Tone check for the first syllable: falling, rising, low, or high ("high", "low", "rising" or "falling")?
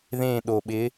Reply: falling